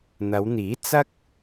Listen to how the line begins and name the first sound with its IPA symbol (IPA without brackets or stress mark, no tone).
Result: n̪